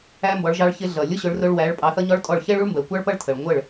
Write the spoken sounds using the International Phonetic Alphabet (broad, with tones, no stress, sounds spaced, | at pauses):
æ˦ m b ɔ˨˦ ɭ ʒ ɑ˧ ɭ ç ɪ˧ ɮ ʌ˨ lʲ ʊ˦ ɕ ʊ˨˦ ɭ r ʊ˧ ɭ w æ˨˦ ɭ pʼ ɑ˧ θ ʌ˦ ɲ ɔ˦ ɭ tʼ ɔ˦˨ ɭ ç ɛ˦ ɭ u˦ ɭ m b ɜ˨ kʷ ɑ˦ ɭ p ʌ˦ ɭ tʰ ə˨ ɭ ŋʷ ə˦˨ ɭ